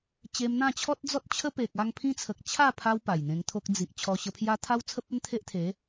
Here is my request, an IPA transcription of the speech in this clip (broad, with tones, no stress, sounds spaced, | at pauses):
t͡ɕ e˧ m n̪ ã˥˧ t͡ɕʰ ɔ˦ t̚ d͡z ɔ˦ t̚ t͡ɕʰ ə˦ p e˨ k̚ a˥˧ ŋ pʰ ĩ˦ t͡sʰ ə˨ k̚ t͡ɕʰ a˥˧ pʰ a˧ w p a˨˩ j n̪ ẽ˧ ŋ t̪ʰ o˦ k̚ d͡z i˨ ʔ t͡ɕʰ ɔ˧ ɕ ə˧ pʰ j a˦ t̪ʰ a˦ w t͡sʰ ə˦ p̚ ə˦ n t̪ʰ e˦ ʔ t̪ʰ e˨˦